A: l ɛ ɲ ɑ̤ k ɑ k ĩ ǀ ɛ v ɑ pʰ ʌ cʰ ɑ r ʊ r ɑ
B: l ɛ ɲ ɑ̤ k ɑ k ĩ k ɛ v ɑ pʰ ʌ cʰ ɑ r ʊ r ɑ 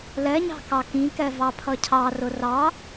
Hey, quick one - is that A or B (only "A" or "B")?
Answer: B